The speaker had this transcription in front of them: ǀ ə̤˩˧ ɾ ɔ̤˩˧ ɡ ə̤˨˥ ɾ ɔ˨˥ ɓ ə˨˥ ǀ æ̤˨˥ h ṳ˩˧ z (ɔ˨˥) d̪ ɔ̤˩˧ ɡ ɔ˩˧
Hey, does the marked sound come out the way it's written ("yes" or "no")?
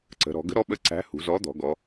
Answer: yes